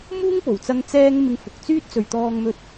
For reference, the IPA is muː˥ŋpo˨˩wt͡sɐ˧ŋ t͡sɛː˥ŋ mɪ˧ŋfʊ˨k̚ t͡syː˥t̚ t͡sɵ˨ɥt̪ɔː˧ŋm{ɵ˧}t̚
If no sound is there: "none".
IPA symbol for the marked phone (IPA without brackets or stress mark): ɵ˧